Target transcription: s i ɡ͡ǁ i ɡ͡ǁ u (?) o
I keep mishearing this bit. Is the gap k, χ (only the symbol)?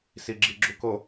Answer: k